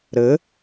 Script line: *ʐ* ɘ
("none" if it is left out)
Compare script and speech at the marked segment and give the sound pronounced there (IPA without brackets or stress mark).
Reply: ɾ